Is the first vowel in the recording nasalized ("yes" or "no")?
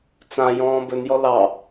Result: yes